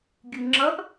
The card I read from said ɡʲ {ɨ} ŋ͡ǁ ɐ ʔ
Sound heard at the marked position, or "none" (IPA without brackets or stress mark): ɨ